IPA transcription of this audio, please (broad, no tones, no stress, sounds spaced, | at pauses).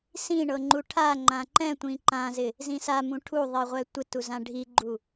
s ĩ ɳ ɤ ŋ͡ǃ u ʈʰ a ŋ͡ǃ ã ǃ ɛ̃ tʷ ĩ ǃ ã z ɪ | z ĩ s a m ũ ʈʰ u ðˤ i ʁʷ ɛ tʷ ɪ t u z ã ɖʱ i ɡ͡ǃ u